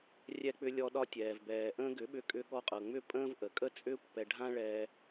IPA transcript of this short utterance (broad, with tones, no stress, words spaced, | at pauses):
rʲɛ˧k͡pʏ˧lʲɔ˧ ɗɒ˧tʲɛː˨vbɛː˨ ʔə̃ː˧ɡʏ˨˦ɓʏ˧ kʼʏ˧ɠɔ˧qʼɤ˨ ŋ͡mʏ˦ pʼə̃ː˦vʔə˨ kʼə˦t͡sʼʏː˦kʷ pɛ˧ɖʱã˦ ɭɛː˦